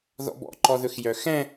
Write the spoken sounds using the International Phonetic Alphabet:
ðɔ̰bɔ̰ǃɔðɵx jœxɛ̃

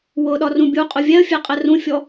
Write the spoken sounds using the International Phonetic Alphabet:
wʊɗɒrũ bʲuqʼʊ vʲɛə̯fʲɛqʼɛr ũfʲɔ

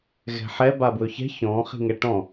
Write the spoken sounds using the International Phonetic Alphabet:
ɣɛ̤ħɛ babwɵçɛ̤ çɔ̃ː χi̤ŋɛʈɔ̃

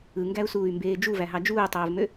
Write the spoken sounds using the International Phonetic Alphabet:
ɯŋɡæu̯suːy̯mbeː d͡ʒuvæɦɑ d͡ʒuːtˤoːvmø

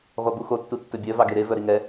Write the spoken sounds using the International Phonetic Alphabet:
ʁʷɑbuxo tːutːɵbʲœ vɑɡeɾe vœɾiŋɛ

